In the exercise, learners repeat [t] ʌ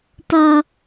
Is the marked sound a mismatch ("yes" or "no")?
no